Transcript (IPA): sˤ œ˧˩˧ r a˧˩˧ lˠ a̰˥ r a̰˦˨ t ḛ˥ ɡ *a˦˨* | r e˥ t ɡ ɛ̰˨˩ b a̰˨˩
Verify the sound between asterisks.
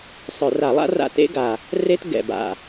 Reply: incorrect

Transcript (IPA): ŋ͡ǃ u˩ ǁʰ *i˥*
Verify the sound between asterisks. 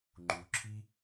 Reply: correct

